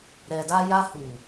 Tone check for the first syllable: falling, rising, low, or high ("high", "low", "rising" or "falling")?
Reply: low